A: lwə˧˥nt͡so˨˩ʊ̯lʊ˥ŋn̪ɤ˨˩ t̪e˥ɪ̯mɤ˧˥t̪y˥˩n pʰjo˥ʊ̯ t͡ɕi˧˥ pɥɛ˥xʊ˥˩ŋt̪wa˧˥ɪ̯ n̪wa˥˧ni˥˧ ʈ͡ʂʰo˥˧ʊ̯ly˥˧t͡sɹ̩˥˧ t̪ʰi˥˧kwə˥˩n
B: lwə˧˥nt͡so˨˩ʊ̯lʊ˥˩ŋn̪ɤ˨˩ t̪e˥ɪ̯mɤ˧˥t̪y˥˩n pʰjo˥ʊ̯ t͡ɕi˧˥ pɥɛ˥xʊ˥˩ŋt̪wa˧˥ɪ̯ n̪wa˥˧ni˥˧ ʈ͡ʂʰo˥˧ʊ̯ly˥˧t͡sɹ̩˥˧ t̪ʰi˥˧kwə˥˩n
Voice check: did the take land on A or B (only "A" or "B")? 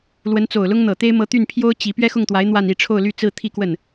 A